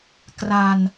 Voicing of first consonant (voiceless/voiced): voiceless